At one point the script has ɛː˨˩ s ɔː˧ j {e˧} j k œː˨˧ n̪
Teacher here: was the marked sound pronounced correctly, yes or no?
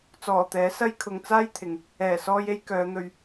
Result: yes